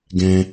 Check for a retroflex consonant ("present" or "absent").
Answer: absent